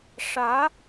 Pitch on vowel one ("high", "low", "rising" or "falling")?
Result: rising